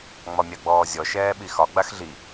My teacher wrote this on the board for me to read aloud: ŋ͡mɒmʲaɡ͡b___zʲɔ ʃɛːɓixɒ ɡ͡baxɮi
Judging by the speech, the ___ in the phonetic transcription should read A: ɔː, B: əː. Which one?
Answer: A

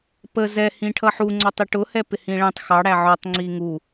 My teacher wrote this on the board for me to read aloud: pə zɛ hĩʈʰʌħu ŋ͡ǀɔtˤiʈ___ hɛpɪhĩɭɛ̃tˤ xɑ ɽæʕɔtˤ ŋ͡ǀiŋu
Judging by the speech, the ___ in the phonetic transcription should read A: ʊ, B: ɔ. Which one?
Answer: A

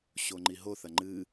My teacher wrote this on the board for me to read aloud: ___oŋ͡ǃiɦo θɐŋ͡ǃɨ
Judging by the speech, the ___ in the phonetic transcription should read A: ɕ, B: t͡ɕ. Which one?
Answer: A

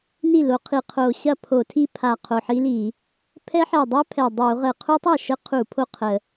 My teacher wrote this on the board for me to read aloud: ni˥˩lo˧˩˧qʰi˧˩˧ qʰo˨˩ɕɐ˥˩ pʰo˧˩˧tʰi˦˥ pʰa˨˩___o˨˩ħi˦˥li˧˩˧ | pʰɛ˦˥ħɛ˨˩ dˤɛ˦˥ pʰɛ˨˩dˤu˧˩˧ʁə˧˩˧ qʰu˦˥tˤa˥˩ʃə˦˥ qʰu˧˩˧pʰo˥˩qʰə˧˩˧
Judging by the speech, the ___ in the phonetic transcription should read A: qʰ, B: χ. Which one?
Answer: A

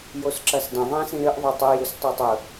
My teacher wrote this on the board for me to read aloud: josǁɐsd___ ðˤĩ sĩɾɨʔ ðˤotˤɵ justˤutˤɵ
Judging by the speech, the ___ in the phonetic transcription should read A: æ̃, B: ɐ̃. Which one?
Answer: B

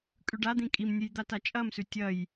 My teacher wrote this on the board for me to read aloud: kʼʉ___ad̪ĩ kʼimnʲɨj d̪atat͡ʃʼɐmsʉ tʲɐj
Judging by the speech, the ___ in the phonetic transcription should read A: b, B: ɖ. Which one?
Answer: B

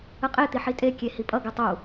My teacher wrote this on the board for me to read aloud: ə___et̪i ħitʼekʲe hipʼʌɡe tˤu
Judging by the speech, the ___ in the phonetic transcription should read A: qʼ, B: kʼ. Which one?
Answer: A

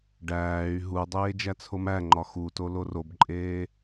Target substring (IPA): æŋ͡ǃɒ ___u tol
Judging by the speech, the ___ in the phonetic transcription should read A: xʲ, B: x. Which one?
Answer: B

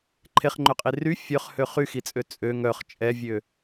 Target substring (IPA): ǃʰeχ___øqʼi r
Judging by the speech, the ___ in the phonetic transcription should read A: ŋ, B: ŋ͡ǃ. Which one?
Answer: B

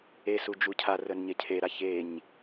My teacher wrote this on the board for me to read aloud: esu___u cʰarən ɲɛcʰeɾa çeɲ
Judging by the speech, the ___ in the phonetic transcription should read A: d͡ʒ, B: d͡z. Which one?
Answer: A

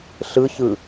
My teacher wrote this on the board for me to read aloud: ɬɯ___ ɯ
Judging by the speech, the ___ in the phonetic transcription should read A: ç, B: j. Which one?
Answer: A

